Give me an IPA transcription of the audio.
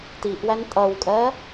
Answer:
tiʔwæn tʼʌwkʼɜ

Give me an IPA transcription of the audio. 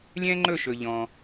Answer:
lʲɛ̃˥ŋ͡ǃɵ˥˧ʃɵ˩ ʎɔ̃˩

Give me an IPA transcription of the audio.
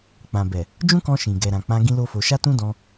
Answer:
k͡pã˨bɛ˨ | d͡ʒũ˦kɔ̃˧ ʃĩ˨ɡɛ˨ɾã˨ k͡pã˧ ɡĩ˦lo˦fo˧ ʃa˦tũ˦dɔ̃˧

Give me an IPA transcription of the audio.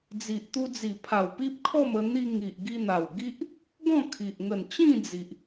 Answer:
d͡zi˨ʔt̪u˧d͡zi˨˩pʰa˨˩w pi˦p̚kʰɔ˥˧m ə˧n̪i˧ ŋi˨ʔɡi˧n̪a˨˩w ɡi˦ʔ | ɡɔ̃˥˧kʰi˨ʔ ŋə˨˩nt͡ɕĩ˥˧d͡zi˨ʔ

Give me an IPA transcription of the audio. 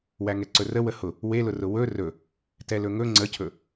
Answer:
wæŋɛǀɵrə wəhʊ | welʊrʊ wɵ rɵ | tɛlɵŋɵ ŋ͡ǀəcʰɵ

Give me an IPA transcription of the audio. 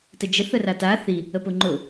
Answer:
təd͡ʒə θərata θi | əpʊŋ͡ǃʊ

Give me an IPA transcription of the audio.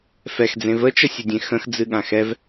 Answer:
fɛxd͡zẽ vət͡ʃəsʲədʲẽ xə̃xd͡zɨɠã xɛv

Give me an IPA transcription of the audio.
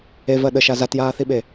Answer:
evɜ ɗəʃa zatjaːθiɓe

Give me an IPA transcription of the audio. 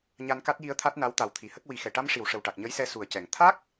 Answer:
ɲa˧nka˦˥t̚ji˧ə̯ t̪ʰa˦˥t̚na˧˥wt̪a˨˩w t̪ʰi˨˩˨hə˦˥k̚ wi˨˩˦xɛ˨˩˨ ʈa˧m ʂi˨˩˨w ʂə˨˩wʈa˨˩k̚ ɲə˧˥jsɛ˧ su˨˩ə̯cɛ˨˩˨ŋ t̪ʰa˦˥k̚

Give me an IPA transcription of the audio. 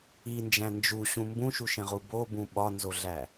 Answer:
ind͡ʒæ̃ nd͡ʒuɕũ mbũʃuʃẽʁu bobũ ɓɒnzoɮæ

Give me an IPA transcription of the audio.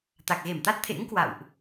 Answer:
t̪a˨˩k̚ɣe˧˩mt̪a˦˥t̚t̪ʰḛ˧˥ŋ kwa̰˧˨wʔ

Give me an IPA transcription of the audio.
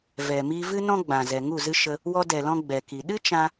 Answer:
vɛ˨mi˧ vɨ˦ nɔ̃˦ɡ͡bã˨ zɛ˨ ŋu˦˨zɨ˦ ʃə˧ | wɔ˧dɛ˨lɔ̃˧ ɡ͡bɛ˨ki˨ ɗɨ˦t͡ʃã˧

